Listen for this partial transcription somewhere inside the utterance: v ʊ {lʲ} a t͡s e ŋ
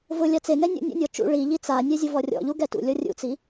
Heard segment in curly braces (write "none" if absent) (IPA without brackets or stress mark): lʲ